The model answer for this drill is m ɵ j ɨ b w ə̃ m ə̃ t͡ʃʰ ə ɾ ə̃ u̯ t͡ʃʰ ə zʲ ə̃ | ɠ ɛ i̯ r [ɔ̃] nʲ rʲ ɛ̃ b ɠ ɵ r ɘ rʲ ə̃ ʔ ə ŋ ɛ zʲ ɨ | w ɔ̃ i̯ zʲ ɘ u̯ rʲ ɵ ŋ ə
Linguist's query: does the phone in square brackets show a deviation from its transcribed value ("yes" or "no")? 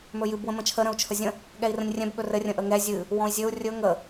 yes